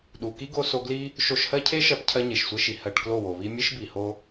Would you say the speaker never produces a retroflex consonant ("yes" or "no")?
no